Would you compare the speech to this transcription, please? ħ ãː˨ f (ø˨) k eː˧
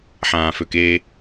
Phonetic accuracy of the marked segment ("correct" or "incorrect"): correct